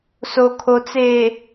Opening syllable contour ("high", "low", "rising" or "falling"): low